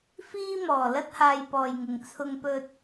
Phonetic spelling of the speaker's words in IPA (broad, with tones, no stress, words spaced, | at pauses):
fiː˧mɔː˨˩lɐ˧t̚ haː˧jpɔː˨jŋɪ˨ŋ t͡sʰʊ˧ŋpɵ˧t̚